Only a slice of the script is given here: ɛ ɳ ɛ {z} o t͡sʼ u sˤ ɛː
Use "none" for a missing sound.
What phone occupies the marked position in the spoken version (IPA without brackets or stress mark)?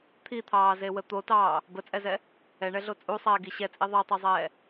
ɮ